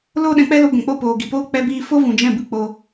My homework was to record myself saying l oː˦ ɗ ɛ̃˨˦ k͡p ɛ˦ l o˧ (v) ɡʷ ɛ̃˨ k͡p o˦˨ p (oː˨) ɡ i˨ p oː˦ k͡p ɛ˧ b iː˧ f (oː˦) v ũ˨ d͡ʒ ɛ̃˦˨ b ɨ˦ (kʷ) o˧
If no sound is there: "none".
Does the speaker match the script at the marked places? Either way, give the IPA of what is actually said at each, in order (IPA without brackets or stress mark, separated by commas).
none, oː˨, o˦, k͡p